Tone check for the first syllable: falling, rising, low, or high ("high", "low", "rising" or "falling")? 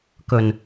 low